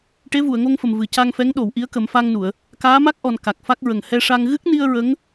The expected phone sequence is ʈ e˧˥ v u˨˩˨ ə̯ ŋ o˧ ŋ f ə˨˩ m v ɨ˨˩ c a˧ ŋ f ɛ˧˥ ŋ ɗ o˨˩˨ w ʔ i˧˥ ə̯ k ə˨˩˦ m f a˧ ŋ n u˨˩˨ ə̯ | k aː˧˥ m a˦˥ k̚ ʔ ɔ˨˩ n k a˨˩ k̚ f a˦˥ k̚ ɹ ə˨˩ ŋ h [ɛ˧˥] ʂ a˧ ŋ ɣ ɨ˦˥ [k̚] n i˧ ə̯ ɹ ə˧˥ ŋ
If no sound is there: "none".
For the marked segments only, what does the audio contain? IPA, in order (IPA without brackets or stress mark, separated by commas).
ɛ˧, k̚